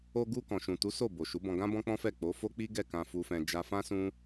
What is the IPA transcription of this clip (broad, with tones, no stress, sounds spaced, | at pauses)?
o˧ ɡ u˧ k ɔ̃˨ ʃ ũ˨ t u˨˦ s o˦˨ b o˨ ʃ u˨˦ b ɔ̃˧ ɡ ã˦ b ɔ̃˦ k͡p ɔ̃˦ f ɛ˦˨ k͡p o˨˦ f o˦ k͡p i˦ ɡ ɛ˦˨ k ã˧ f u˧ f ɛ̃˧ d͡ʒ a˧ f ã˦ s ũ˦